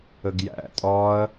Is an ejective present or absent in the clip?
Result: present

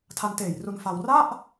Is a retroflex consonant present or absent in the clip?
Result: absent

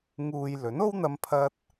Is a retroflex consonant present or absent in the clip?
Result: absent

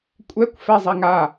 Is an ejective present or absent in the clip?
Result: present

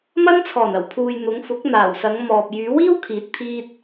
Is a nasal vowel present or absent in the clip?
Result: absent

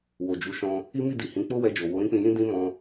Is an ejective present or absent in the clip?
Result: absent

